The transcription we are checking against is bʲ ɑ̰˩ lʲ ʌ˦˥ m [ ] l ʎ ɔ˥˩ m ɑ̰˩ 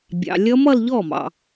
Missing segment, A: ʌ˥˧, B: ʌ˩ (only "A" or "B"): A